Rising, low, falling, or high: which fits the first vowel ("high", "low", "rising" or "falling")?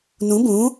rising